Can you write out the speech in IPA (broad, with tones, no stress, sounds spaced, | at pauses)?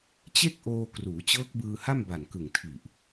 t͡ɕ e˥˩ k̚ ʔ oː˧ k r uː˩˦ t͡ɕ ɤː˦˥ k̚ b ɯː˧ h a˥˩ m b a˨˩ n k ɯ˨˩ ŋ tʰ i˨˩ ʔ